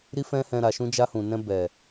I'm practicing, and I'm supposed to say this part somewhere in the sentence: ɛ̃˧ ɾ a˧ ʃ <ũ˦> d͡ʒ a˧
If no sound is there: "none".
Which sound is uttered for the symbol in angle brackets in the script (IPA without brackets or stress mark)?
ũ˦